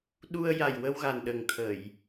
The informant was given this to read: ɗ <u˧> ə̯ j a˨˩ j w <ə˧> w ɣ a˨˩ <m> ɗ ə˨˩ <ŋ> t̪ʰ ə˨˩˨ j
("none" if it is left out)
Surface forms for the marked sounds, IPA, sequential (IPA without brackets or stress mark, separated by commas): u˧, ə˧, n, ŋ